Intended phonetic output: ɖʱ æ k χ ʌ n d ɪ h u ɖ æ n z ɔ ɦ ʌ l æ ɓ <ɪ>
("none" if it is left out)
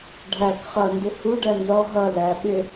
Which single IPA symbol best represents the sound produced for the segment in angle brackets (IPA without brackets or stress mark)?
ɪ